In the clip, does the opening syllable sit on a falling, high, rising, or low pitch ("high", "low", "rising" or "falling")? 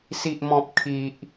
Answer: low